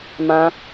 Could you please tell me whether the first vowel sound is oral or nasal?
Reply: nasal